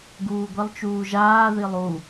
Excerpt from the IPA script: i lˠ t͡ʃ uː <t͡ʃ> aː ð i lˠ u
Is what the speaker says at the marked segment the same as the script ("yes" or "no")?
no